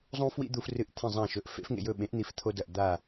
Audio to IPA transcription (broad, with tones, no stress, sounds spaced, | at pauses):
zˤ ũ˦ f w ḭ˦ d̪ u˦ f r ɨ˦˨ ʔ t̪ʰ ẽ˦˨ zˤ ã˦˨ ʃ ɵ˨˥ ʔ f ḛ˨˥ f ŋ ḛ˦˨ j ɵ˦˨ ɓ ẽ˨˥ ʔ n̪ i˦˨ f t̪ʰ o˦ d ɐ˦˨ ʔ d̪ a˦˨